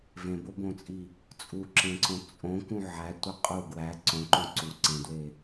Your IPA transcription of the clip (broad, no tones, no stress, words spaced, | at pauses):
vẽbobõt͡sʼi | t͡sʼuǁẽǀõ t͡sʼõkũ ʕætʷe qʼu ɡwæ ǀõǃõ ǀu ǀẽdwe